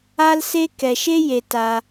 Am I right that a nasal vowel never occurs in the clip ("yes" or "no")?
yes